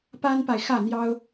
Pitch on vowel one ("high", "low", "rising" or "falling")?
high